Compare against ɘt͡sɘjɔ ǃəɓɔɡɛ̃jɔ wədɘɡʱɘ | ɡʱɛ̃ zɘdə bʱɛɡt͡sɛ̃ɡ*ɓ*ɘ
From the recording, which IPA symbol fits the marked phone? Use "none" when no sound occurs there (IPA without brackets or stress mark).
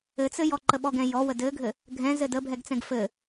f